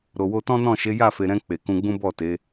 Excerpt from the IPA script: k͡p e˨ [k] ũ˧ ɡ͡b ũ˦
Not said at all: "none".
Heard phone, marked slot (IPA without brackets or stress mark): k